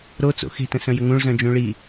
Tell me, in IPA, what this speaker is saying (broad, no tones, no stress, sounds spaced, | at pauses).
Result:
ɾ o t͡s o̰ x e̤ t ə̃ s œ̃ j ə ŋ ũ ɭ z œ̃ d͡ʒ ũ ɭ i